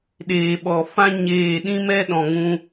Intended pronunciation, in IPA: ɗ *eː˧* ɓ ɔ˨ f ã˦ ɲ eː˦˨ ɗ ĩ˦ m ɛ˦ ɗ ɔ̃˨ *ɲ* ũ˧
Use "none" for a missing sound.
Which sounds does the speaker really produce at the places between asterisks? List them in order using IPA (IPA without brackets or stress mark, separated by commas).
eː˨, ŋ